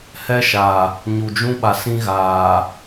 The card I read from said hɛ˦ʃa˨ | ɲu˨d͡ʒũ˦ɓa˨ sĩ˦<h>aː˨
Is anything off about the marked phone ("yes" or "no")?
yes